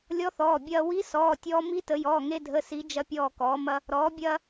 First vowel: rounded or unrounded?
rounded